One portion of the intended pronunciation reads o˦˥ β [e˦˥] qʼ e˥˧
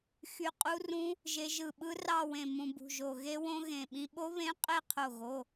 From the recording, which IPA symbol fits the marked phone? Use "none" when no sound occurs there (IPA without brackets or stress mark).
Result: ẽ˦˥